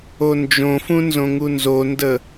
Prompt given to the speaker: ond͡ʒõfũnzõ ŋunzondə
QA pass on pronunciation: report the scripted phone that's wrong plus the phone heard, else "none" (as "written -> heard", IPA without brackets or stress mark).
none